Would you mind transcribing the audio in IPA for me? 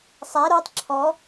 sˤ æ ɾ o tˤ ǁʰ ɔ

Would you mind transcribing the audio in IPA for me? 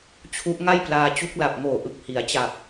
t͡ɕʰ u˦˥ ʔ ŋ a˥˩ j p l aː˧ t͡ɕ u˦˥ k̚ l a˨˩ p̚ ŋ oː˨˩ ʔ ɯ˨˩ k̚ h i˩˦ a̯ t͡ɕ a˨˩ p̚

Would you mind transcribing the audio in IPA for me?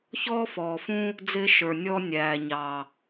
ç ɔː˦ f ɔː˨ f ũ˦ | d͡z ɪː˦ ʃ ə˞˨ nʲ ɔː˦ nʲ æː˨ ɲ ɑ˨

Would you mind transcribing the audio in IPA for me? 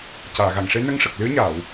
c aː˨˩˨ ɣ a˨˩˨ ŋ ʂ e˧˥ n ə˧ ŋ ʂ ə˨˩ k̚ l ɨ˧˥ ə̯ ɲ aː˨˩˨ w

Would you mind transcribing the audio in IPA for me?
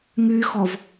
ŋ y x ɔ v

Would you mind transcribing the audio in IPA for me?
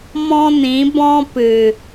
m ɔ̃˦ n ĩ˨˦ b ɔ̃˦ p ɨ˨

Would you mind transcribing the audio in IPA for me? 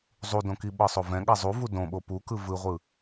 zˤ u d õ k i ɓ ɤ sˤ o v ɛ̃ ɠ a zˤ u v u d õ ɓ o p u k ɯ v ɯ ʁʷ ɯ

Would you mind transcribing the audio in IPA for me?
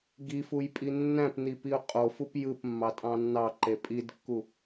ɡ i f u j pʼ i nː æ̃ p n i p i ʊ̯ qʼ o f u p j ɯ p mː ɑ tʼ ɑ̃ nː ɑ ǃ e pʼ i d kː u

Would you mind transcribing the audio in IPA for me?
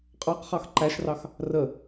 qʼ ɑ q χ ɑ x ǃ æ ʃ r ɑ x | r ə

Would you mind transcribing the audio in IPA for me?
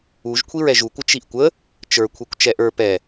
u ʒ kʷʰ i ɹ ɛ ʒ u kʷ ə t͡ʃ i ʔ kʷ ə | t͡ʃ ə˞ kʷʰ ɛ kʷ t͡ʃ ɛ ʔ ə˞ p ɛ

